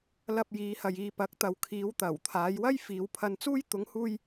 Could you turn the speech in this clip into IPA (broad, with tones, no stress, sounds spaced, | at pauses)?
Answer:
l ɐ˧ p̚ j iː˨˧ h ɐ˨ j iː˧ p ɐ˨˥ k̚ t̪ ɐ˨ w kʰ iː˨˧ w t̪ ɐ˨˩ w t̪ʰ aː˨˧ j w ɐ˥ j f iː˨˧ w pʰ ɐ˧ n t͡s uː˥ j t̪ ʊ˨˧ ŋ h uː˧ j